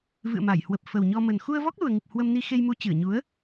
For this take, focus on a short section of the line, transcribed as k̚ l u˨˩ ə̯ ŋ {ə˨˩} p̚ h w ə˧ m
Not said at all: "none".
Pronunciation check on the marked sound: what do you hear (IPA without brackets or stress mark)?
ɨ˨˩